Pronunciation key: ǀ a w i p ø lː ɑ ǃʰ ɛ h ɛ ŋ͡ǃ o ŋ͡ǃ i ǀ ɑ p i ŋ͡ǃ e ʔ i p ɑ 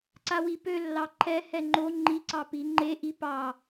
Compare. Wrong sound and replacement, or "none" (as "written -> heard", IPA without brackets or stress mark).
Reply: none